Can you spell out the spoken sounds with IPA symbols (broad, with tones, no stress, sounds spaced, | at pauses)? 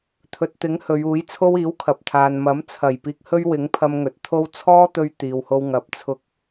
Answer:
t̪ʰ ɵ˨ t̚ t̪ ɪ˨˥ ŋ h ɵ˨˧ ɥ uː˨˥ j t͡sʰ o˥ w iː˨˥ w kʰ ɐ˨ p̚ t̪ʰ aː˨ n m ɐ˨˥ m t͡sʰ ɐ˨˩ j p iː˧ k̚ h ɵ˥ ɥ w ɪ˨˥ ŋ pʰ ɐ˧ m ŋ ɵ˨ t̚ t̪ʰ o˥ w t͡sʰ ɔː˥ t̪ ɵ˧ ɥ t̪ iː˨ w h o˧ w ŋ ɐ˨ p̚ t͡sʰ ʊ˧ k̚